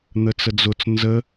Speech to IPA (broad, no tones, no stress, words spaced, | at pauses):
n̪ət͡səd͡zʊt͡s nzə